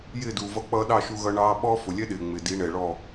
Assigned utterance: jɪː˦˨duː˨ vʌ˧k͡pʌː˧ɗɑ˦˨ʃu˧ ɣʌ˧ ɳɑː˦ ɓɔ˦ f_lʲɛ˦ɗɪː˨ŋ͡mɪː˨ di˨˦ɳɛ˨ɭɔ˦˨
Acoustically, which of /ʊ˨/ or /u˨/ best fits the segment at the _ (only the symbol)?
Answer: ʊ˨